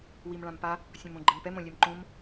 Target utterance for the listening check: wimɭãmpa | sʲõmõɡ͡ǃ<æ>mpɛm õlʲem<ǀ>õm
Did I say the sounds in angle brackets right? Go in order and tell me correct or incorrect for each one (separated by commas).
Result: incorrect, incorrect